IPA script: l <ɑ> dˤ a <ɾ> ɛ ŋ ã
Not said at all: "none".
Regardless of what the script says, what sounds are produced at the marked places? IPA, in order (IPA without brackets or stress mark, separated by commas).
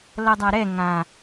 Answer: ʌ, ɾ